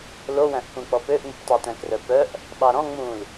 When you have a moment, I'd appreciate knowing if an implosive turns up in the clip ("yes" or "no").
yes